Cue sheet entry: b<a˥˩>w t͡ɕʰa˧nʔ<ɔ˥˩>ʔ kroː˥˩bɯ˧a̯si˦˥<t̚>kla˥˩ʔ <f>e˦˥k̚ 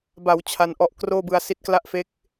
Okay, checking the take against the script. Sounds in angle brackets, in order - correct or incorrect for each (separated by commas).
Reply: incorrect, incorrect, correct, correct